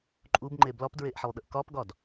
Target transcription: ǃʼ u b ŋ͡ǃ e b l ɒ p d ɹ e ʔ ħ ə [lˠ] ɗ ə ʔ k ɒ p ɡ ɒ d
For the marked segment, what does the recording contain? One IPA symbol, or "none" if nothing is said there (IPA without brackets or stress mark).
lˠ